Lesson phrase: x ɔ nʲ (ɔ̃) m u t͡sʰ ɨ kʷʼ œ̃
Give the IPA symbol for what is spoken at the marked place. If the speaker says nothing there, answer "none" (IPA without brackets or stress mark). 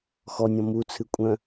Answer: ɔ̃